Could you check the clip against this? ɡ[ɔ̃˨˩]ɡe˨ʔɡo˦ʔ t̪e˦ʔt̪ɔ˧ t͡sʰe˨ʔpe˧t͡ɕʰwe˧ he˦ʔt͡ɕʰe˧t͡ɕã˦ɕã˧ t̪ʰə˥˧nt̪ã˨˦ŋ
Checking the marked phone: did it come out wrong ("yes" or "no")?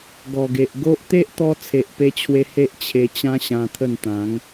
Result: yes